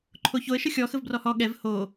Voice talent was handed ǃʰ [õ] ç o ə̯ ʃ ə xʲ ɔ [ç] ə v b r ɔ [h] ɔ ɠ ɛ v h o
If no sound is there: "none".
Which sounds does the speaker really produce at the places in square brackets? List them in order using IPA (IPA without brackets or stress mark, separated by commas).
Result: o, x, h